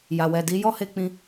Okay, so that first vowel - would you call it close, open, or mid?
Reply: open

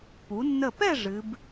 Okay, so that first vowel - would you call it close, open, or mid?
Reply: close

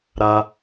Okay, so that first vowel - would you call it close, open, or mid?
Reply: open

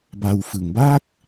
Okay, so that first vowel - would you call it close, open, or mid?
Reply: open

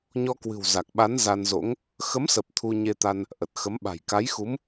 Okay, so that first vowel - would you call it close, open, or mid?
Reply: mid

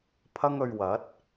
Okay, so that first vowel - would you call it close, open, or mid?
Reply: open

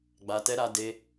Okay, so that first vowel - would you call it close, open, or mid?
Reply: open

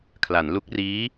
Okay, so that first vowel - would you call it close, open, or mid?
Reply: open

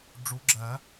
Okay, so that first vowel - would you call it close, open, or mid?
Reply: close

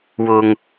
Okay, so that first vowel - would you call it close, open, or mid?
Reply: close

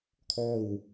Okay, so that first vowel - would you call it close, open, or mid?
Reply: mid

